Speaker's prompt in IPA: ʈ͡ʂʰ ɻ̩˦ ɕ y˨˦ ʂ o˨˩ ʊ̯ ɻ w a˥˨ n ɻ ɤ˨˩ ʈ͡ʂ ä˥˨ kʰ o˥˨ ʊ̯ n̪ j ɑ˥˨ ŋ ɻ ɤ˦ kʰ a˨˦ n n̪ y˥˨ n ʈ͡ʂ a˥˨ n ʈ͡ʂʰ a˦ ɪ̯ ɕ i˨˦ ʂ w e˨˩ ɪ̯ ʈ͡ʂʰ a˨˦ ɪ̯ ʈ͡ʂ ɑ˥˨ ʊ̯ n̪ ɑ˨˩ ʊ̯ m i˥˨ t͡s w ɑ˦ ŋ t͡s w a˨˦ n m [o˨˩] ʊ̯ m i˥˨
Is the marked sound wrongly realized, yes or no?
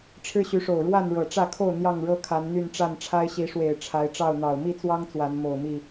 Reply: no